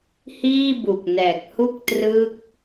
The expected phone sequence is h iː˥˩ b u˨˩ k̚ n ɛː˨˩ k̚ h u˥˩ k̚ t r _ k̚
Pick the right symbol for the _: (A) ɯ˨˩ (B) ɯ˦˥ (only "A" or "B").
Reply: B